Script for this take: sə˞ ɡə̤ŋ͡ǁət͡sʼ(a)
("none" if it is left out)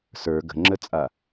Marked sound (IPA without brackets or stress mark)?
a